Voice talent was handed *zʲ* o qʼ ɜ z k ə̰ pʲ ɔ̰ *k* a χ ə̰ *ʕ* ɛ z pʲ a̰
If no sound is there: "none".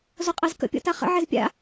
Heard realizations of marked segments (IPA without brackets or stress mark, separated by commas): z, t, ʕ